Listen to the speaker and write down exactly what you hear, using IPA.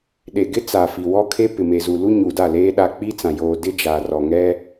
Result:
ɗ e˨ ɡ ɪ˦ t͡s a˨ f i˨ w ɔ˦ kʰ e˦ p ɪ˨ m e˨ z u˨ l u˦ ɲ u˨ d a˦˨ l eː˦ ɗ a˦ k͡p i˦ t͡s ã˨ j oː˨ d ɪ˦ d͡ʒ a˨ r ɔ˨ ŋ ɛ˦

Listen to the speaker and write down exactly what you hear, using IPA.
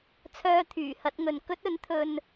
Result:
t͡sʰ œː˧ t̪ʰ yː˨˩ h ɐ˧ t̚ ŋ ɵ˨ n k ɵ˥ t̚ ɵ˨˥ n t̪ʰ ɵ˧ n

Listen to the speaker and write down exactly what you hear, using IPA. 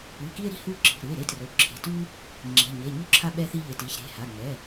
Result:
ɯ˩˧˩ k i˦ e̯ ɾ i̤˦ h u˦ ǁ i̤˩˧˩ ɾ ɯ˩˧˩ e̯ ɾ e˦ t r o˩˧˩ ǁʰ e̤˩˧˩ t u˦ | ŋ͡ǁ e̤˩˧˩ ɲ e˩˧˩ ɲ u˦ ǁʰ a˦ ɓ ɛ˦ θ i˦ ʎ e˩˧˩ t i˩˧˩ ç ɾ e̤˩˧˩ h a˩˧˩ ŋ͡m ɛ˩˧˩

